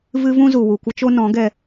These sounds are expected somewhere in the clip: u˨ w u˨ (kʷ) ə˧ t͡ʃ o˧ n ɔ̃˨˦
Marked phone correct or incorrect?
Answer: correct